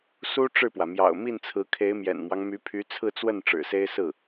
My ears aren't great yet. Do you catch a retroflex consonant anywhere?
yes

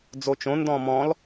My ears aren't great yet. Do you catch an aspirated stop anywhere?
no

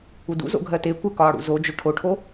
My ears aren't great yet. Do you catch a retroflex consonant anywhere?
yes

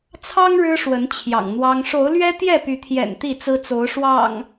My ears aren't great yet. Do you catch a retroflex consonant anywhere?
yes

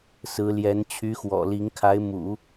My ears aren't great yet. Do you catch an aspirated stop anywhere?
yes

